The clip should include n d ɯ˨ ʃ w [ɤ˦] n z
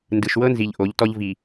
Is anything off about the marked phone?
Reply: no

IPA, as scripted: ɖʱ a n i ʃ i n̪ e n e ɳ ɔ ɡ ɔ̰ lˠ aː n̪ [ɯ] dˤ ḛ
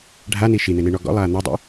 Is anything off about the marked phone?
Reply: no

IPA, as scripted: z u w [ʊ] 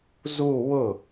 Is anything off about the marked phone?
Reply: no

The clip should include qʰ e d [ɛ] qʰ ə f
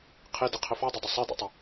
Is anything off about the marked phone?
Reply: yes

